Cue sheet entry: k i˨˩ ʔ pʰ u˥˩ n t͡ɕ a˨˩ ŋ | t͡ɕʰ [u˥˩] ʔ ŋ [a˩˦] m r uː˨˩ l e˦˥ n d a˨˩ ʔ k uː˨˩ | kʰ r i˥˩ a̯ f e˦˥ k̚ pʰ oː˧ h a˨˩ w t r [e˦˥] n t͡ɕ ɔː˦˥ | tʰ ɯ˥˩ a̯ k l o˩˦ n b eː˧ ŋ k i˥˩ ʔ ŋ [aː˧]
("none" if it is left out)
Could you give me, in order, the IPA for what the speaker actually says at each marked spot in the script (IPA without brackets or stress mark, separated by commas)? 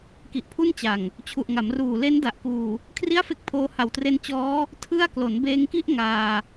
u˨˩, a˩˦, e˦˥, aː˧